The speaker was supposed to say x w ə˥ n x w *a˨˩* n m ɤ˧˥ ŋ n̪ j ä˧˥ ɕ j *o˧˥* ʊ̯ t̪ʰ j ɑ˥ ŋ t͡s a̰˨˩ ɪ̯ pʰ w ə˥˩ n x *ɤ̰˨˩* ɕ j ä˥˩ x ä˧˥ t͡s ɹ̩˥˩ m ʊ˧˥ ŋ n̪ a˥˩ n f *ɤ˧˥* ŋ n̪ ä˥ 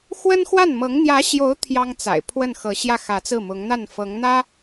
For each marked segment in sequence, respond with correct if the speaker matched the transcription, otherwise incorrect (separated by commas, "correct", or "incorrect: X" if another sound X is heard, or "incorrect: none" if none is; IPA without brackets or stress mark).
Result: incorrect: a˥˩, correct, incorrect: ɤ˧˥, correct